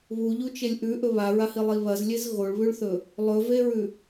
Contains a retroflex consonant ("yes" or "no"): yes